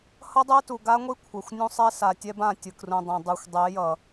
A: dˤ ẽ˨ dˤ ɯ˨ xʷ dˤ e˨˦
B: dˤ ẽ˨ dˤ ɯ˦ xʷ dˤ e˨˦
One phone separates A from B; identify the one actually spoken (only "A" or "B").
A